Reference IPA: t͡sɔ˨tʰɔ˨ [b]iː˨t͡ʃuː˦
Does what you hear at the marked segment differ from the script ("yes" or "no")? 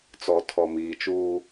yes